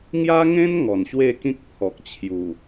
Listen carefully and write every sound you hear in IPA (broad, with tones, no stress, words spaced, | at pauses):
ŋja˦ŋẽ˦n ŋɔ˨˩nɕwe˥˧kĩ˦k̚pʰɔ˨k̚ t͡ɕʰju˨˩